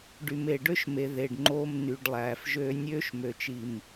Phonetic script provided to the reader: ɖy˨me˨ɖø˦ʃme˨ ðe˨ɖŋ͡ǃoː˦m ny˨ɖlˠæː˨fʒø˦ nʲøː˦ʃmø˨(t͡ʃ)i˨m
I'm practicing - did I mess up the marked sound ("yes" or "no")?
no